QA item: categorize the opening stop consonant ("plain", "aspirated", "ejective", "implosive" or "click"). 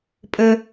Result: ejective